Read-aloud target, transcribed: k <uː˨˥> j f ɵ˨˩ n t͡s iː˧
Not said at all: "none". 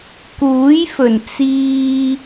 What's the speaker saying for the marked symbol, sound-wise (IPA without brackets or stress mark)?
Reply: uː˨˥